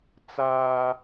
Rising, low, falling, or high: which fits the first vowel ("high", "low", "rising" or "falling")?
high